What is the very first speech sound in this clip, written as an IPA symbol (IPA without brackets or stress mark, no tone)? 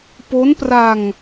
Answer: p